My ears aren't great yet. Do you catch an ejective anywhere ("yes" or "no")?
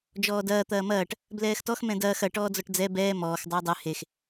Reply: no